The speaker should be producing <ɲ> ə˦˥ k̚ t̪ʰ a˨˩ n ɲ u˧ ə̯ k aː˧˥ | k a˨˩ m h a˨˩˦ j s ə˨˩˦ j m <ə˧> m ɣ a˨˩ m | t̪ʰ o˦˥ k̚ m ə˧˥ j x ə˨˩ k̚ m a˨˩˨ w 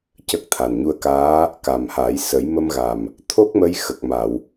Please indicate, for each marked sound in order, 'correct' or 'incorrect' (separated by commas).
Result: incorrect, correct